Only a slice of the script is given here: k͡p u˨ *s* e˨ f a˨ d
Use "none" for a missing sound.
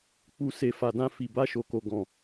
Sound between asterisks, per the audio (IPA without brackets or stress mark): s